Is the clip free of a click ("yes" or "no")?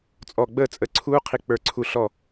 no